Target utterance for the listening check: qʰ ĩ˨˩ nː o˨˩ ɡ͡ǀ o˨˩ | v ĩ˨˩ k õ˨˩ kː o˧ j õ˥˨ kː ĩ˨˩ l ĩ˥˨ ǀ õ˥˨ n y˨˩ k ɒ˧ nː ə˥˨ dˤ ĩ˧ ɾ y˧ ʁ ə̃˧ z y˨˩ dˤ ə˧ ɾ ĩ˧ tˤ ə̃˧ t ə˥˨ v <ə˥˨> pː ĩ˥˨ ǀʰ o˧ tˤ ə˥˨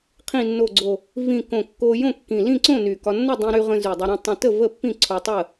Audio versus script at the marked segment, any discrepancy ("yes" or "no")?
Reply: no